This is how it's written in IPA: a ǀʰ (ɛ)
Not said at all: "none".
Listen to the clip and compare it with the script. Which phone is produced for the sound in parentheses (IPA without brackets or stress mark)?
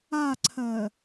ɜ